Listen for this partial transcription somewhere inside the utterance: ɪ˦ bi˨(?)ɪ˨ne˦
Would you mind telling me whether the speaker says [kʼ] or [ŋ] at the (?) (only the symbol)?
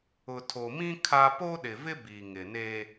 ŋ